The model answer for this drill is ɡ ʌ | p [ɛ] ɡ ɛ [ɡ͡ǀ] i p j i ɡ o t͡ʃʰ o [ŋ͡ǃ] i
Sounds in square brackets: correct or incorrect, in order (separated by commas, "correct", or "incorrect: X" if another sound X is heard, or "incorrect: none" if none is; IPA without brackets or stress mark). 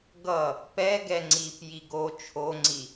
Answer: correct, incorrect: ŋ͡ǀ, incorrect: ŋ͡ǀ